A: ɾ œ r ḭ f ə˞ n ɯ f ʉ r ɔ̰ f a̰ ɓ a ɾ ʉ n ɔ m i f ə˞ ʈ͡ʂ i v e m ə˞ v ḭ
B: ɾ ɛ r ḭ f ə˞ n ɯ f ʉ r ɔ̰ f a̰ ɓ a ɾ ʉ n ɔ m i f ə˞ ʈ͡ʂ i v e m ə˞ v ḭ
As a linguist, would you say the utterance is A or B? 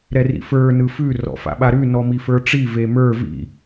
B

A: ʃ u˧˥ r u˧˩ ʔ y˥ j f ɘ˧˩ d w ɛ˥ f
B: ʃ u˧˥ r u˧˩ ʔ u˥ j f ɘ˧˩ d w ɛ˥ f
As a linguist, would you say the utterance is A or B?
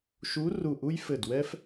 B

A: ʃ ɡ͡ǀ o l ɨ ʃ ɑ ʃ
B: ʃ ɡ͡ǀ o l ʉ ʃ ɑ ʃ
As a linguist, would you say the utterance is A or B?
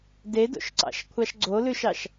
B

